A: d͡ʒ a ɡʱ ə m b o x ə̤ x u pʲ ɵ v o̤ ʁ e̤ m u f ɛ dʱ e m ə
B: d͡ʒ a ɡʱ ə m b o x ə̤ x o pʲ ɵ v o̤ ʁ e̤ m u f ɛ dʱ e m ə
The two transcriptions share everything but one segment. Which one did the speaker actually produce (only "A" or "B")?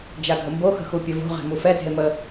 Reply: A